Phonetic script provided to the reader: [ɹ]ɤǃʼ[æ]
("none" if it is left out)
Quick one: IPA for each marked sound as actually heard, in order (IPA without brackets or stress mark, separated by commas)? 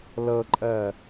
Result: l, ɜ